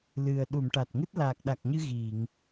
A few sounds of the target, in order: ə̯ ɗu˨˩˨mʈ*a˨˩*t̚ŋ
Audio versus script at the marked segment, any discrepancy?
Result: no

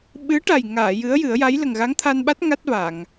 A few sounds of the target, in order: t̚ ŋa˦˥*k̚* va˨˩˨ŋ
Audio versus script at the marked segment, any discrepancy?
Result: yes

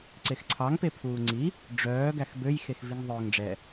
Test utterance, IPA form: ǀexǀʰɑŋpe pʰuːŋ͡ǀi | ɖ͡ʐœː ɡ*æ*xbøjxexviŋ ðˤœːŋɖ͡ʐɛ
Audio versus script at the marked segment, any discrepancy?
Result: no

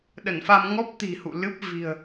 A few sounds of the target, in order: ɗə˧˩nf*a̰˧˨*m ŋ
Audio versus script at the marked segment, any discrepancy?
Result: yes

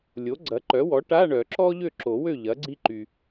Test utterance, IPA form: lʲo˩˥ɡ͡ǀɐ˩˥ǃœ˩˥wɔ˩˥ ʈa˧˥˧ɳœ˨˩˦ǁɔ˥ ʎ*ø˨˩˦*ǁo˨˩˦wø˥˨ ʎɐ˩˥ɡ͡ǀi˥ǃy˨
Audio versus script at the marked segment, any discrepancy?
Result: yes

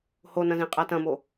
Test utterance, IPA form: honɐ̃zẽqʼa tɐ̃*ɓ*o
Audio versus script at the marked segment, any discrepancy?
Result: yes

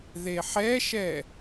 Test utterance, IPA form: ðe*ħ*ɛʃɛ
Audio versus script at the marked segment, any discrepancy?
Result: no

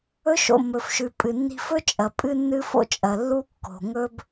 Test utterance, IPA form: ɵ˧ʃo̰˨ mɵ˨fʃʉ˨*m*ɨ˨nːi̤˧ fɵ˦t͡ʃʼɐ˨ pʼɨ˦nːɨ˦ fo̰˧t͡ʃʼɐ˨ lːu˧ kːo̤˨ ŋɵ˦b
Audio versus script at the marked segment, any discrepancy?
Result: yes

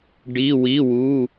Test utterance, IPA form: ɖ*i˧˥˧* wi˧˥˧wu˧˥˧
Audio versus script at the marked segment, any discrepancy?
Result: no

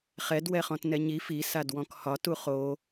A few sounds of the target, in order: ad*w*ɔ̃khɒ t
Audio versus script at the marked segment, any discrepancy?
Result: no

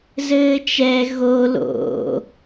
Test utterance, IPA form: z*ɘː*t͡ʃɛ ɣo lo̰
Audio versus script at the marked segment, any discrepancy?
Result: no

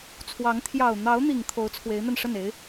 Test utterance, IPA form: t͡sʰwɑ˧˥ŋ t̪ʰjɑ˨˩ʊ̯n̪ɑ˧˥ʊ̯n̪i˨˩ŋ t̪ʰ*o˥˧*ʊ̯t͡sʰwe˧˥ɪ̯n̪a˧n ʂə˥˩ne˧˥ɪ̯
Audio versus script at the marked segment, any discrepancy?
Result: yes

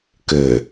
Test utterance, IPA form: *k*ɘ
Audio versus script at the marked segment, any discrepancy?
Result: no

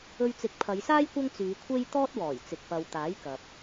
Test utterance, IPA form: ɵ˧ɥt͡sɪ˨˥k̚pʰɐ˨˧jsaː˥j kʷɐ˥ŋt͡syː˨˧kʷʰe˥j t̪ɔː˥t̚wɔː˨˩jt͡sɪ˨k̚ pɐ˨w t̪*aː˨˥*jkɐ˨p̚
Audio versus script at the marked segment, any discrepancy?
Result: no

